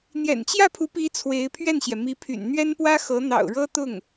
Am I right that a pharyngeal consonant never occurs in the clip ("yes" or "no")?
yes